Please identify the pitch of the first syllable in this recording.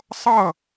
falling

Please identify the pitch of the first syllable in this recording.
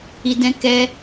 low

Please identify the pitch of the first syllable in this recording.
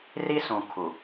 high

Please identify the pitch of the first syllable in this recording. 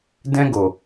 high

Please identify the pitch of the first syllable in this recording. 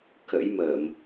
rising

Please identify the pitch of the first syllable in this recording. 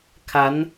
rising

